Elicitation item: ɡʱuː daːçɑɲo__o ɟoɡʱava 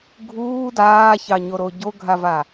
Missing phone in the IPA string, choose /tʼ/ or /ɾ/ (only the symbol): ɾ